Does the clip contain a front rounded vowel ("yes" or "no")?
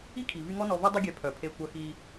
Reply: yes